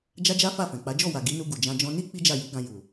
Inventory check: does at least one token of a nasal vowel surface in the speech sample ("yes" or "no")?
yes